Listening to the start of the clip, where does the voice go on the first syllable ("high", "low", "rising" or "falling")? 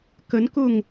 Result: rising